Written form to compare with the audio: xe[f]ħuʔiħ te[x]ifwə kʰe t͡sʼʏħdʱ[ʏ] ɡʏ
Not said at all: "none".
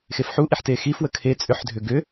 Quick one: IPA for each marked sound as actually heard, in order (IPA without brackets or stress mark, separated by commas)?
f, x, ʏ